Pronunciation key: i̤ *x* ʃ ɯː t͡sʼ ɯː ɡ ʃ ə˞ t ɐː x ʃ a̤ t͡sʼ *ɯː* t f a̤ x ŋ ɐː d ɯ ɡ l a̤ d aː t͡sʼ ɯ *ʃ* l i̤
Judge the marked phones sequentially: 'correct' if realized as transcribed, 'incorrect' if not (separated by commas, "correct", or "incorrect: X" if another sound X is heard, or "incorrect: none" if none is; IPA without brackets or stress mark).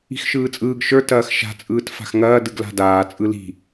correct, correct, incorrect: none